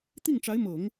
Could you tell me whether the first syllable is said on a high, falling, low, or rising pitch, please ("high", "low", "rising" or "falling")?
falling